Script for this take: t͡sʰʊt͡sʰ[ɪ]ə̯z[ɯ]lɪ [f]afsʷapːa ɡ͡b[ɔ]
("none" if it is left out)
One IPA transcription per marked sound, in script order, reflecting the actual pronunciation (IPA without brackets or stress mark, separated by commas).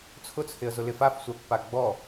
ɪ, ʊ, f, ɔ